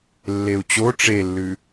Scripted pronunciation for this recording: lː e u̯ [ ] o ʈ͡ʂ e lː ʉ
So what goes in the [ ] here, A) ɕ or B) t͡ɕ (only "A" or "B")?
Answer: B